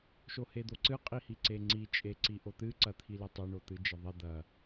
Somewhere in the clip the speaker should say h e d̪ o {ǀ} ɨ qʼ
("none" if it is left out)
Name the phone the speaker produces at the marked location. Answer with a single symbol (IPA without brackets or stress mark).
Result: ǀ